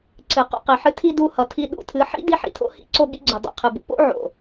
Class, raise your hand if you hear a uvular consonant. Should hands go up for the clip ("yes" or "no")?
yes